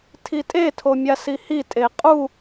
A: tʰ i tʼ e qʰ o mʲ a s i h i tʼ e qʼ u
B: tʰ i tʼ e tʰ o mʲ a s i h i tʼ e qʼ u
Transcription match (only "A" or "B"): B